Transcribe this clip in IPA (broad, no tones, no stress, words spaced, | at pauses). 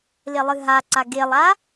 lelˠɨɦaǀa ɡelˠa